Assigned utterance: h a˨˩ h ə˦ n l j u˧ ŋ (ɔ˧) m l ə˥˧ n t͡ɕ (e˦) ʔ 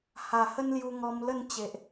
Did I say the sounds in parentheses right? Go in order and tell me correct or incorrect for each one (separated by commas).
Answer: correct, incorrect